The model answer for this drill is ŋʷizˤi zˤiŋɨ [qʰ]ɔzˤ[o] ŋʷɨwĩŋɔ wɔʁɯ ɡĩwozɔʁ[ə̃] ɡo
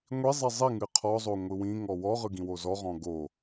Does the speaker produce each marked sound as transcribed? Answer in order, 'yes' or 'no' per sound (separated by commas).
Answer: yes, yes, no